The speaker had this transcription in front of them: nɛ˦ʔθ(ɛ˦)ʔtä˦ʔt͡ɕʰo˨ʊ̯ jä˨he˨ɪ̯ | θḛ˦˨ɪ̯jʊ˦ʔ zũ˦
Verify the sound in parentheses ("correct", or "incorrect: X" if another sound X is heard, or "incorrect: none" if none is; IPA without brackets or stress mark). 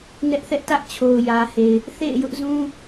correct